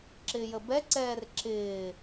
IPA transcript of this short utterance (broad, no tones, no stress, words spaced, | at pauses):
ǁɪːjəbɛǀɛːr ǁɪː